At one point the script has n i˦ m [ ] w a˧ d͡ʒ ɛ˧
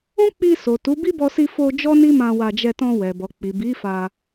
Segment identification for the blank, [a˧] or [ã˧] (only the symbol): ã˧